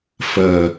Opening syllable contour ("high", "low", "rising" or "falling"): low